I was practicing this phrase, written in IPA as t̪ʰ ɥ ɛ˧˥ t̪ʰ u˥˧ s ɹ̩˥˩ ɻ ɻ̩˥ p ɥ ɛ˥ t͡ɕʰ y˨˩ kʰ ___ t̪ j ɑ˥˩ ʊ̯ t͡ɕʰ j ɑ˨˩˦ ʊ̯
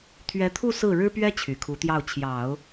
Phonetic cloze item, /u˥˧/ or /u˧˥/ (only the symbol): u˧˥